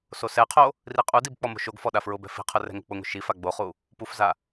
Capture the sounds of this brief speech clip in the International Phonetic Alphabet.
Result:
sosɛqʰo | riqʼudib k͡pɔmo̤ʃoɡfɔ ɗafɹʊbɛ̤ fi̤qʰʊ rɛ̤ŋo̤k͡pʊŋo̤ ʃifa ɡ͡boχu | pufza

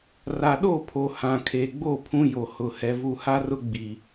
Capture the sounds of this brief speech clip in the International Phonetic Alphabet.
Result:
ra˨ɗo˦˨pʰo˨ hã˨kʰe˨ɡ͡bo˦˨ pʰũ˦jo˨hʊ˨ hɛ˨vu˨ha˦rʊ˦ ɡ͡bi˨

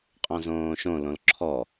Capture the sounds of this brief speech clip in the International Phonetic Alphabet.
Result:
qʼɔ̃zõːʃõ lõlǁʰɔ

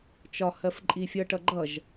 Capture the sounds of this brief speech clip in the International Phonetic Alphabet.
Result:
t͡ʃɒhɜf ǃʼifʲʌʈʌ ɡ͡ǃʌʒ

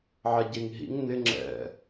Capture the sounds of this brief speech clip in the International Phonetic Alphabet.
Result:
ʕɛɟeŋɦḭŋ nɪ ŋ͡ǁɛ̰

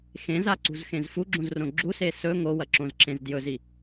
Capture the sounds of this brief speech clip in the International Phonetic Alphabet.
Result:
xẽzaǀṳzxẽz fuɡ͡ǁũzrõ ɡ͡ǁuse sɵ ŋowɐǁõzǁẽz djɵzi

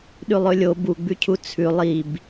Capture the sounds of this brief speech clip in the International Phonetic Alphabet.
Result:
ɗʉlˠɵlʲo buɡ͡bʉcʰu t͡sʰʉ lˠib

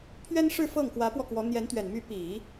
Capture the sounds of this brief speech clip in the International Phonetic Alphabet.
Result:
pʰɥɛ˥nʂɻ̩˥˧ fɤ˥˩ŋ kwä˧˥pwɔ˧kwɔ˧˥ n̪jɛ˧˥nt̪ɥɛ˨˩n my˧˥pi˨˩˦

